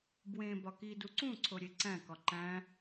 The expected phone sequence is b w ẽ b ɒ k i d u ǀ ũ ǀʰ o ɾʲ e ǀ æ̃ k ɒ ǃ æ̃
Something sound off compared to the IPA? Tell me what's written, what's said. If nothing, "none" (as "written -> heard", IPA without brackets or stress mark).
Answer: none